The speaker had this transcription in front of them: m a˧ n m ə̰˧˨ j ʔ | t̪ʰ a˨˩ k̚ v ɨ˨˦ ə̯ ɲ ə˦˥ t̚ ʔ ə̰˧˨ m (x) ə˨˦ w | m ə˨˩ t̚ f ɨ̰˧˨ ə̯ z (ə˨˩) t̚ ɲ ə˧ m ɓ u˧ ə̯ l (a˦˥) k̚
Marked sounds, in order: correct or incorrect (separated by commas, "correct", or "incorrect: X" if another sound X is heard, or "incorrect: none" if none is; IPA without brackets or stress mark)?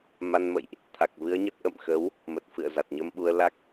correct, incorrect: a˨˩, correct